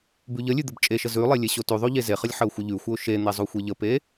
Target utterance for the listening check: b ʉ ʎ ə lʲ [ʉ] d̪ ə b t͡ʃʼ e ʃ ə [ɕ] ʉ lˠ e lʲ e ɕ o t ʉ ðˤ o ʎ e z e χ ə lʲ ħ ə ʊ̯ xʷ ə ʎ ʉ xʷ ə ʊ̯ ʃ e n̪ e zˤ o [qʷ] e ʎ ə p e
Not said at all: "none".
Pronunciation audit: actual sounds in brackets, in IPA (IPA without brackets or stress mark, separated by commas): ʉ, z, xʷ